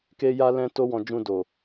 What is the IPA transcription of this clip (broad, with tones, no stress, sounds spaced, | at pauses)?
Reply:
k e˦ j a˦ l ɛ̃˦ t o˦ w ɔ̃˧ d͡ʒ ũ˧ d o˨